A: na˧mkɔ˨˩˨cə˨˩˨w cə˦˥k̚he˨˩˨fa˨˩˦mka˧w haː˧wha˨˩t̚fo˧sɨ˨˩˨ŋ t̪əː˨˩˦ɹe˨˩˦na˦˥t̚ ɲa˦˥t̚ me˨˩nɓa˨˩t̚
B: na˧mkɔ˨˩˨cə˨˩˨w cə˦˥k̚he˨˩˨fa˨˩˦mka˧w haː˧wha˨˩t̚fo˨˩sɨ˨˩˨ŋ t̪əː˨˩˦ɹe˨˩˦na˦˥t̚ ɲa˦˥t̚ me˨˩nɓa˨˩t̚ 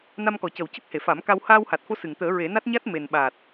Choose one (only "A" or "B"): A